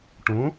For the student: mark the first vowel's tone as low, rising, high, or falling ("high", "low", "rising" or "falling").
rising